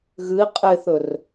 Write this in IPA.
ɣɨi̯ qʼeθɵr

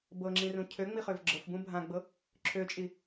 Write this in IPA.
bɤŋ͡ǁĩrũ cʰøŋ͡miχøv ɡ͡ǁɤfbũ bʱãɡ͡bɤ | ǁʰøt͡ʃʼi

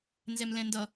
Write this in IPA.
nzɛmlɛ̃ndʌ

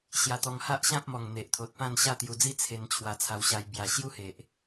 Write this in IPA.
ɕja˧t̪ɔ˧ŋ ha˦ʔɕã˦p̚mɔ˨˩ŋ n̪e˨ʔt̪ʰo˨t̚pã˥˧n ɕa˥˧t̪ju˧d͡zi˦ t͡sʰe˧n t͡ɕʰwa˧t͡sʰa˧wɕa˧j bja˨˩ ɕju˦he˨ʔ

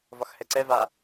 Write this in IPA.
vɒxhɛǀɛ va

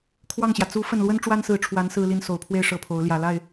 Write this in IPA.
kʰwɑ˥˩ŋɕjä˩ t͡su˧˥ fə˥˩n lwə˥nʈ͡ʂwa˥nsɹ̩˧˥ʈ͡ʂʰwa˧˥n sɹ̩˥li˥n so˨˩ʊ̯pʰwe˥˧ɪ̯ ʂɤ˥˩pʰo˧˥ʊ̯ ljä˨˩la˥˩ɪ̯

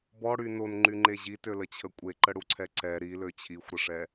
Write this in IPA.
bɔɽy nonŋ͡ǃyŋ͡ǃe ʑitølət͡ɕʰə kʷʼeǃəɽuǀʰɛ ǀɛ ɾilø t͡ɕʰixʷɾəʂɛ

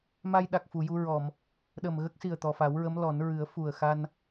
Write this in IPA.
ma˧jɗa˨˩k̚ fu˨˩˨ju˧ɹɔ˨˩˨m | ɗə˨˩mɣə˦˥k̚si˨˩ə̯ t̪ɔ˨˩fa˨˩˦w ɹə˧˥mlɔ˨˩˦nɹɨ˨˩˦ə̯ fu˨˩ə̯xa˧n

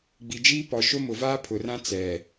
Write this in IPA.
ɡ͡bi˨d͡ʒiː˦pɔ˨ ʃo˦mʊ˨vaː˦ pʰʊ˨rã˦ t͡sɛ˨

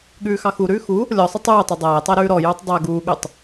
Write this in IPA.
ɠʉːxɑxuɾʉː xu | lʲɔsˤə tˤʉːtˤu dˤæːtˤæ ɾʉːɾɔjuːtˤ dˤæ ɡuːɠʉtˤ

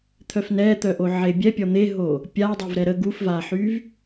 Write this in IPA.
t̪ʰœfnɛt̪œʔo ʕebʲɛpʲɔ n̪eɦo | pʲadˤev ɾɛɾə ɡufvaħyv

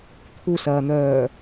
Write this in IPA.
t̪ʰusɐːn̪œː

